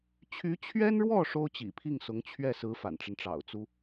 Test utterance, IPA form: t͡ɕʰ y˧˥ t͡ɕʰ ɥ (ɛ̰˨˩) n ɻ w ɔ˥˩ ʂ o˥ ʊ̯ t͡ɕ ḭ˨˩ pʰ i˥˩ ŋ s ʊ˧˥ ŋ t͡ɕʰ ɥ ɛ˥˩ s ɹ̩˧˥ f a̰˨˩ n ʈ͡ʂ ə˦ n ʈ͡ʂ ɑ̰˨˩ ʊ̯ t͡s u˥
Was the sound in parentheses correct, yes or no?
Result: no